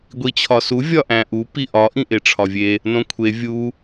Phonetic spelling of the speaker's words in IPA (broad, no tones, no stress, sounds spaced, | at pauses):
ɡʷ i t͡ɕʰ ɒ s u vʲ ɒ ʔ æ̃ ʔ u p i ʔ ɒ ʔ ĩ ʔ e ʈ͡ʂʰ ɒ vʲ e | n õ kʷʰ e vʲ u